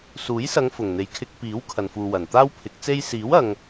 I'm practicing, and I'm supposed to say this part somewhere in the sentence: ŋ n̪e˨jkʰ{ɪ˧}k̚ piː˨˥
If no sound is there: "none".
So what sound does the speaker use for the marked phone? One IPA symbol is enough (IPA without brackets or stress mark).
ɪ˧